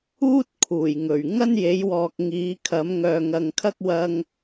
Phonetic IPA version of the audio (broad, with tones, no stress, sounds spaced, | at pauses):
uː˥ t̚ kʰ uː˨˩ j ŋ ɵ˨˩ ɥ ŋ ɐ˥ n j e˨˥ j w ɔː˨ k̚ ŋ iː˨˧ kʰ ɐ˨˥ m ŋ œː˨ ŋ ɐ˨ ŋ kʰ ɐ˥ k̚ w ɐ˧ ŋ